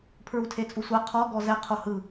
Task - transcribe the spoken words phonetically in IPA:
pʰ ɹ u tʰ e t͡sʼ u sʷ a qʰ ɔ ɡ ɔ z ɛ qʰ o h ɯ

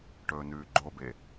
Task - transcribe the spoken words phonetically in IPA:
ʈ ɵː n ʉː ɡ͡ǃ o b e

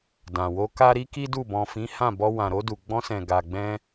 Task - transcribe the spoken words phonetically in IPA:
d ã˨ w o˧ k a˦ ɾ i˦ k i˦ d u˦˨ b ɔ̃˨ f ĩ˨˦ h ã˦˨ b ɔ˧ w ã˨ ɾ o˧ d u˨ ɡ͡b ɔ̃˧ s ɛ̃˨ ɡ a˨ ɡ͡b ɛ̃˧

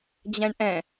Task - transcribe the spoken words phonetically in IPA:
d͡ʑ ɛ̃ ɳ ʔ ɛ̃

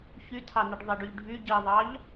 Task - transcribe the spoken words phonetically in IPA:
ç y tʰ ɑ n i ɖ ðˤ e ɖ y ʎ ɖʱ y ɟ i ðˤ ɑ ʎ

